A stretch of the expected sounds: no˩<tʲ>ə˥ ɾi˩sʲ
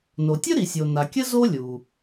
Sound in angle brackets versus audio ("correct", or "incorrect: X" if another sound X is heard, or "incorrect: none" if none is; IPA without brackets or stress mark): correct